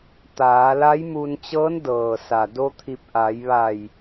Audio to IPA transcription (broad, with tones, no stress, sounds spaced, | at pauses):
t̪ aː˩˧ l a˧˥ j m u˧ n t͡ɕ ɤː˧˥ n d ɤː˩ s a˩ d o˧ t̪ʰ i˧˩ p̚ ʔ a˩˧ j ʋ a˧˩ j